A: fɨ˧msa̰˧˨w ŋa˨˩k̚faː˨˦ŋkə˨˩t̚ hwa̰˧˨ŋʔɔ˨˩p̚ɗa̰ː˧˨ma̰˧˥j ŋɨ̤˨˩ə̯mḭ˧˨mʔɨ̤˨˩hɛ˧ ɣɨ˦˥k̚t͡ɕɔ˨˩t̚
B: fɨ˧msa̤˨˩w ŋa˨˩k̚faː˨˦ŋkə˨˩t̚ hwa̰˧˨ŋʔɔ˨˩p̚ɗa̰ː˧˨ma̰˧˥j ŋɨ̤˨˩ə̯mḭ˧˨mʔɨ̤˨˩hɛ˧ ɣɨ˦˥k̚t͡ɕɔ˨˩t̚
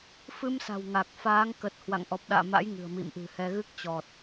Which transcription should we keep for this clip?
B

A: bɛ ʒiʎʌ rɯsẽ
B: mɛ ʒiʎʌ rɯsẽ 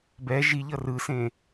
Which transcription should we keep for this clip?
A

